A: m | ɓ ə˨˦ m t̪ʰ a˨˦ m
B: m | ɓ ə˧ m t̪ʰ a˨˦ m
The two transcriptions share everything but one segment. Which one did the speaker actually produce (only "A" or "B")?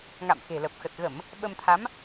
B